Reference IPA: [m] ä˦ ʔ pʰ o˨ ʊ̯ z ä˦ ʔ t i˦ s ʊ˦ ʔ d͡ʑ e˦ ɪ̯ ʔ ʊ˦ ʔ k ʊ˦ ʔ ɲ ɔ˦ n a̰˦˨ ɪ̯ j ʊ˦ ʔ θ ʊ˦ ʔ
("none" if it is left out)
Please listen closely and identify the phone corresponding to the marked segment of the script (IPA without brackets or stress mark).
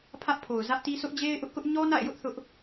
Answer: pʰ